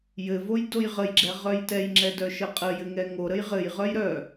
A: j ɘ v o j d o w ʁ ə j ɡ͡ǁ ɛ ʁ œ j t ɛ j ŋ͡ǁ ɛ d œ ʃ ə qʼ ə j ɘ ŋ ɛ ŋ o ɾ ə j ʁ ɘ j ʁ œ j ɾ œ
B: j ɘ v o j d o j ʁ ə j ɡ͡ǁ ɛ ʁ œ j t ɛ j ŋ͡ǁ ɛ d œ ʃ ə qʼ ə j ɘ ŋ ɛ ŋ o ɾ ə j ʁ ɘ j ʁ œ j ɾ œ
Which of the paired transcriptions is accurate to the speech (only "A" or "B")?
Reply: B